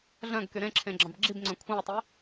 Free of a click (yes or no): no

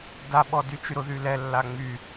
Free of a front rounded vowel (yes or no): no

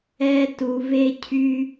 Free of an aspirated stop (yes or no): no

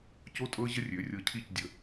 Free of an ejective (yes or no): no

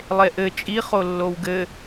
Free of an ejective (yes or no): no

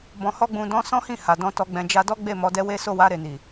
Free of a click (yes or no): yes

